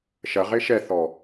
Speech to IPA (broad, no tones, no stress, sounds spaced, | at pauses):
ʃ ɐ ʁ e ʃ ɛ θ ɔ